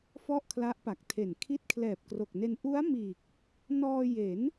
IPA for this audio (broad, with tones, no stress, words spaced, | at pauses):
fɔ˥˩ʔkʰla˦˥ʔpa˨˩k̚tʰe˨˩n kʰi˦˥t̚kʰlɛː˨˩p̚ kro˨˩k̚ne˧n ʔu˦˥a̯miː˨˩k̚ | nɔː˧je˩˦n